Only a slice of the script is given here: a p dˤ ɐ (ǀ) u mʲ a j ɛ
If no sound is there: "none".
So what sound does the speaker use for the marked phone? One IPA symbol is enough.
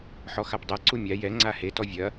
ǀ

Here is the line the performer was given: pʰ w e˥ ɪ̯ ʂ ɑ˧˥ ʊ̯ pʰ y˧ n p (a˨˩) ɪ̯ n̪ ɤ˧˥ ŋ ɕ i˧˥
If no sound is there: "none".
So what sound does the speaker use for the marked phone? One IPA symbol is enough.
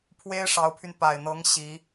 a˨˩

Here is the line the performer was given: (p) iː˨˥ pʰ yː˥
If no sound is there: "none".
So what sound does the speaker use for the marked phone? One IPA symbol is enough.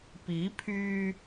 p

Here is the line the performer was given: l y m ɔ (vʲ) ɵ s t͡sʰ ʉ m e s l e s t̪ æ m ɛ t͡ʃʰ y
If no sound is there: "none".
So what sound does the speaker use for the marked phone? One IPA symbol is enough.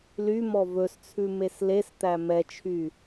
v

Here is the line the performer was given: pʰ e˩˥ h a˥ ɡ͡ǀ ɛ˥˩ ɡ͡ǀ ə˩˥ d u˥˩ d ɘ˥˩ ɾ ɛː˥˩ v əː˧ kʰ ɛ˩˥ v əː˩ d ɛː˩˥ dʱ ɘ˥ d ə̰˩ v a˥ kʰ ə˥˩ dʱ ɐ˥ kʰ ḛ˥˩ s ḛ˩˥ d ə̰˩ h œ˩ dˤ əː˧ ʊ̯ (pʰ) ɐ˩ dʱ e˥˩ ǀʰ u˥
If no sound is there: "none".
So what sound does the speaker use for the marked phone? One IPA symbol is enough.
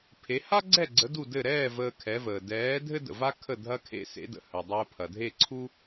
pʰ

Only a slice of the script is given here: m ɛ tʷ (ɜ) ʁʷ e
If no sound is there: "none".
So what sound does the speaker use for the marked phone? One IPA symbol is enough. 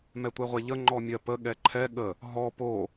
ɛ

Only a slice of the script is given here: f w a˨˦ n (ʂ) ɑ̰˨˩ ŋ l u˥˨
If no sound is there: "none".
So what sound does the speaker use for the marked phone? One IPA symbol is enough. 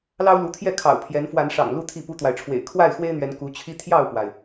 ʂ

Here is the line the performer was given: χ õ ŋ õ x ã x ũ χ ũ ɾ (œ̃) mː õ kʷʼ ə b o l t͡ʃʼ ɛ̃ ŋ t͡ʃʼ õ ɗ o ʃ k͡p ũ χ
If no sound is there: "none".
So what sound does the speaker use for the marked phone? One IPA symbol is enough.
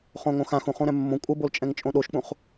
ɛ̃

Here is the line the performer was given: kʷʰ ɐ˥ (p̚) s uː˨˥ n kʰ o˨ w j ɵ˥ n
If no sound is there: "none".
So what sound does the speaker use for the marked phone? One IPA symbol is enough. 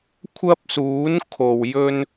p̚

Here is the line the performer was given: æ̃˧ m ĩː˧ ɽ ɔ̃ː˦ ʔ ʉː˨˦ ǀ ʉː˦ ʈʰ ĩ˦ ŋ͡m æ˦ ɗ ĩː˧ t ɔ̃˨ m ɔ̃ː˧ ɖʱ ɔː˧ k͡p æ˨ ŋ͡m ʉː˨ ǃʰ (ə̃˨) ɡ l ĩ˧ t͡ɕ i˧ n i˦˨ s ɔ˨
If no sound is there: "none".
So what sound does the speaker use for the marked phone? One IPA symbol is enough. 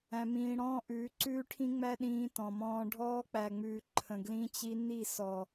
ə̃˨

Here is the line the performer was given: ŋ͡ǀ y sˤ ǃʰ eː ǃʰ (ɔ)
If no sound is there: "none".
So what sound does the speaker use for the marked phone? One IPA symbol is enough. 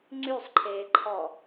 ɔ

